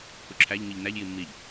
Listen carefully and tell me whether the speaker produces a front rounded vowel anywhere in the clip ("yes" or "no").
no